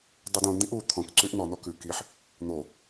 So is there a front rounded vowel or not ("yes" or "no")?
yes